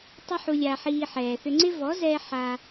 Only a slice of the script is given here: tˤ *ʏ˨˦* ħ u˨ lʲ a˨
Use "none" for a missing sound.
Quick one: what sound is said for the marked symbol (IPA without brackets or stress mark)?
ʏ˧